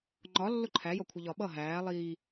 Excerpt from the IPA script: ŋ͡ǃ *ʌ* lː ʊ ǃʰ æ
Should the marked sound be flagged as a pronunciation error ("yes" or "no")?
yes